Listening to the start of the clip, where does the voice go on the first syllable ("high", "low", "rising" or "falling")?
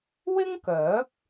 high